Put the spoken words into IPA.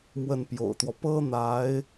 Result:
mwə˥˩npjo̰˨˩ʊ̯t̪wɔ˦ pɤ˥n̪a˧˥ɪ̯

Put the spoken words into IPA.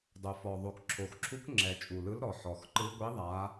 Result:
dˤo˨˩fɔ˨˩ ðˤo˨˩kǁʰo˨˩xǁʰu˧˥kŋ͡ǁɛ˨˩ t͡ʃʼu˨˩lɯ˧˥lɾɔ˨˩ ħɔ˨˩xǃɯ˧˥ ɡʷi˧˥ ðˤa˧˥

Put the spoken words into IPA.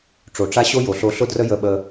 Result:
ʈ͡ʂo˨ʈ͡ʂa˦ɕo˦ jo˨ɬo˧ɬʊ˦drə˦ jə˧ɓə˧

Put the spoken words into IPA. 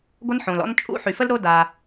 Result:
ɡʷə˦nħõ˨lɔ̰˦n t͡ʃʼṵ˦ħy˨fə˦lɾo˦ da˦

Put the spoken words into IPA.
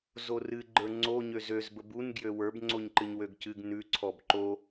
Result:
zorɨ ɡ͡ǃə˞ŋ͡ǀo ɲøzøz bəbun ɡjøwə˞b ŋ͡ǀoɲǃɨɲwøɡcɨɡ nʉ ǀʰɔbǃo

